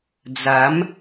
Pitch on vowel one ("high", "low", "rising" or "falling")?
rising